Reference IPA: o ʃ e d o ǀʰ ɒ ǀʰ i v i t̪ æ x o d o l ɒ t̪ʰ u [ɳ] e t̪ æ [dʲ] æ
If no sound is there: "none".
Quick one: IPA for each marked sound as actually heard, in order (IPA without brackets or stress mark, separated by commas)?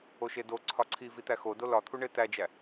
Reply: ɳ, d͡ʒ